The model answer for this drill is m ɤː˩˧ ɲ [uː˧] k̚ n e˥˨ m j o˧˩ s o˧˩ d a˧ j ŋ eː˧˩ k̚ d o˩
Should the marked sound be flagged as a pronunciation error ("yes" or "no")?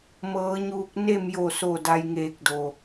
no